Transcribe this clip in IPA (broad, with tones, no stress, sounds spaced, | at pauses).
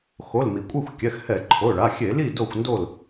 x o˩˧˩ l m i˩ kʷʼ e˥˨ xʷ kʲ ɛ˩˧˩ x h ɛ˧˩˧ ǃʰ o˩˧˩ ɭ a˩˧˩ xʲ e˧˩˧ l i˥˨ d o˥˨ xʷ n d o˥˨ l